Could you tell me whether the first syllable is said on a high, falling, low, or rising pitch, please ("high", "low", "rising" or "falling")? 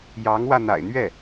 rising